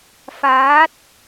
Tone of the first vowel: rising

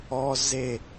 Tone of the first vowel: high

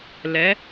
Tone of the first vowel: rising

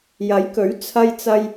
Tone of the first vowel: rising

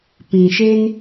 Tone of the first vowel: low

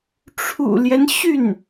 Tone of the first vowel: low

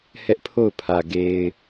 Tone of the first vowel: high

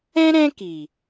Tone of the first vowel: high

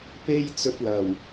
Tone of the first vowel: high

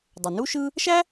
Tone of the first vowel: low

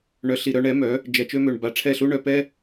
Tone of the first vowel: rising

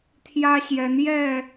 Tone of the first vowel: high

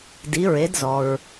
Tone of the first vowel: rising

